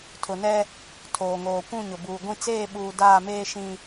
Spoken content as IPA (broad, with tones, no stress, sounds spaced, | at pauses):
tʰ ʊ˨ n ɛ˦ | tʰ oː˨ ŋ oː˨ kʷ ũ˦˨ ɲ ʊ˨ b uː˨ ɡʷ ĩ˦ t͡s eː˦˨ ɓ uː˨ d aː˦˨ m eː˦ ʃ ĩ˦